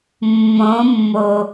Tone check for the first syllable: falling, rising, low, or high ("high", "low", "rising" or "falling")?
rising